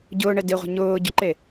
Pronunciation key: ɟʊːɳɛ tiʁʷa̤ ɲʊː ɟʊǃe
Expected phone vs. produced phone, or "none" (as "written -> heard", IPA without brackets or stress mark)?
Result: t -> d